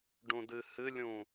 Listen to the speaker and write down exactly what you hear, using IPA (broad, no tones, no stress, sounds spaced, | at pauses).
ɖ ũ d ɨ h ɨ lʲ ũ